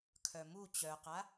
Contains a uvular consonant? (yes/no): yes